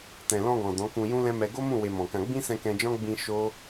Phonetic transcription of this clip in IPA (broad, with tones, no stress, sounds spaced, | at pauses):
t ɛ̃˨ l ɔ̃˧ ɡ ɔ̃˨ d ɔ̃˨˦ k ũ˧ j ũ˦ l ɛ̃˦ m ɛ˧ ɡ o˦ m ũ˦˨ w e˧ m ɔ̃˨ k ã˧ ɡ͡b ĩ˦ s ɛ̃˧ k ɛ̃˧ d͡ʒ ɔ̃˦ ɡ͡b ĩ˧ ʃ o˦